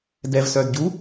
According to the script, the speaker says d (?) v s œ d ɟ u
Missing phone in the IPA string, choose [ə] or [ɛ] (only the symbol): ɛ